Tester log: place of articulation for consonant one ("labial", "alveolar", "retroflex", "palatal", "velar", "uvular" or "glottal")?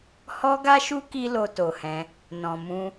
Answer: glottal